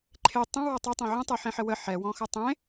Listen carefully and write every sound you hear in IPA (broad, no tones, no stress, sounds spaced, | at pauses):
ǃʰ e tˤ ə̃ w ɔ tˤ ɛ tˤ ẽ ʕ ə̃ tˤ e ħ ẽ ħ ə w ə ħ ɛ w ɔ̃ x ə tˤ ẽ